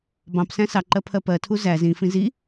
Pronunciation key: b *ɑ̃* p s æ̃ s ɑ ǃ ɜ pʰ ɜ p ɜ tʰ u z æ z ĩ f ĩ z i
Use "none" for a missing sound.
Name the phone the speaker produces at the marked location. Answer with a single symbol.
ɑ̃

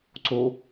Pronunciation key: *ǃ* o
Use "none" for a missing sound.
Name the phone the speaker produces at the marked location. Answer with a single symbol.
ǀ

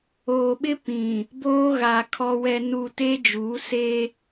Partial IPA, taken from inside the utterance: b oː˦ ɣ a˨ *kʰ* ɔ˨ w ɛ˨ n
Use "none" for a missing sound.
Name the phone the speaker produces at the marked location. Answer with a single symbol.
kʰ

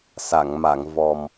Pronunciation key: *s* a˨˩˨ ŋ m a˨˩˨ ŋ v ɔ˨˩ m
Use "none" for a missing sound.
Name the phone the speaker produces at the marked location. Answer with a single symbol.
s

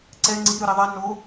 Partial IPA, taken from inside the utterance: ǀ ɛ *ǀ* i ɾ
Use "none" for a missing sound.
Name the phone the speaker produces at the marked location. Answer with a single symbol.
ŋ͡ǀ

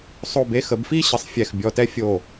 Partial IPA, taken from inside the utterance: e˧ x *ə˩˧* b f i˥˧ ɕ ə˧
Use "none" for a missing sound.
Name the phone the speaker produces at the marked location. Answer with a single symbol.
ə˩˧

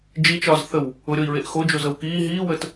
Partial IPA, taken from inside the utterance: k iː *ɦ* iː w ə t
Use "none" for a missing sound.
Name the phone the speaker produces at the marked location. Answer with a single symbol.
ɦ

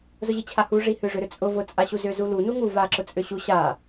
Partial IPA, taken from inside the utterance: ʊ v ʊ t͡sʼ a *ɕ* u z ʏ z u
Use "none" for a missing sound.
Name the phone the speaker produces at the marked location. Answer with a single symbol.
ɕ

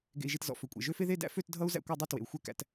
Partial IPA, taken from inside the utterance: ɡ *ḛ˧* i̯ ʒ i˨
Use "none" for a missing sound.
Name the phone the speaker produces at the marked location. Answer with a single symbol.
ḛ˨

